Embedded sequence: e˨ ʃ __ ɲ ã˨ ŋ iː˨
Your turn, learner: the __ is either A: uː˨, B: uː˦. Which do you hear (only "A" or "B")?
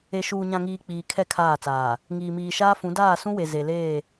A